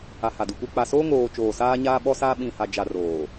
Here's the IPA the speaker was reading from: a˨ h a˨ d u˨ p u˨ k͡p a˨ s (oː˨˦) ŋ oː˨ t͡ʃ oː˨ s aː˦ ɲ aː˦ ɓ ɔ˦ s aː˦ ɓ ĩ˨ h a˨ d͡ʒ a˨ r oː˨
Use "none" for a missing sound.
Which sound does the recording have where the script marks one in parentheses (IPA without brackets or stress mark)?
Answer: oː˦